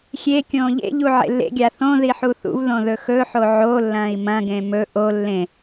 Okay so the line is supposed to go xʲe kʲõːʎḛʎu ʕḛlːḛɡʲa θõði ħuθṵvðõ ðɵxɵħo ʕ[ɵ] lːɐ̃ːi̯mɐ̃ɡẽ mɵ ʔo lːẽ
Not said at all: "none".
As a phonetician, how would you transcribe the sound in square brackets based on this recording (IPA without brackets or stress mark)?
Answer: o